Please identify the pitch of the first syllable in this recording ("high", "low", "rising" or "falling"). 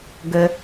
high